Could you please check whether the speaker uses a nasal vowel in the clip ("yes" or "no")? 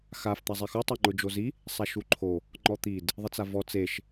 no